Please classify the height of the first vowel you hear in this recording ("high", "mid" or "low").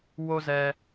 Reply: mid